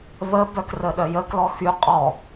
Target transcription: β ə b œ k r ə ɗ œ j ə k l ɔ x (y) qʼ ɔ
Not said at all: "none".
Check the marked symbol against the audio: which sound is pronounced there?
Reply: y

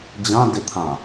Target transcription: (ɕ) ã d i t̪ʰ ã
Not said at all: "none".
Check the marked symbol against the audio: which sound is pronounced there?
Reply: d͡ʑ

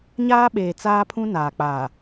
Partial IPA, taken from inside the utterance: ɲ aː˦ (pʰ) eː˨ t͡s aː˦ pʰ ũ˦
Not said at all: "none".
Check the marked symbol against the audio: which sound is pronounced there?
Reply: ɓ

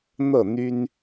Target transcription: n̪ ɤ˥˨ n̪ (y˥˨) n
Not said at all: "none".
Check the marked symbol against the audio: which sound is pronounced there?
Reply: y˦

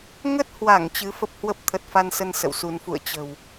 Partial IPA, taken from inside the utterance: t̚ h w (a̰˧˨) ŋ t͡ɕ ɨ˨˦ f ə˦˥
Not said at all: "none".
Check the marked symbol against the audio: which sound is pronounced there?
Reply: a˧˩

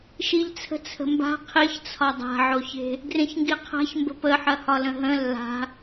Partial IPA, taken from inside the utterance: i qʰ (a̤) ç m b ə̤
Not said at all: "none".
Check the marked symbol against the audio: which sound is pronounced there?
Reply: a̤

